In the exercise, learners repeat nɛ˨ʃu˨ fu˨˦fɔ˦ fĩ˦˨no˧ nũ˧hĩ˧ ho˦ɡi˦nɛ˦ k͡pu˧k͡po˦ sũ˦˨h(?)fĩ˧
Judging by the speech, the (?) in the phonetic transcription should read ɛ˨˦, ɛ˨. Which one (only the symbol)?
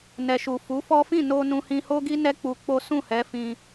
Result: ɛ˨˦